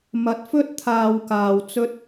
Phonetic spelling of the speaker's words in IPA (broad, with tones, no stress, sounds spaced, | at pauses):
m ɐ˨˥ t̚ f ɵ˥ t̚ t̪ʰ aː˨ w k aː˨ w t͡s ɵ˧ t̚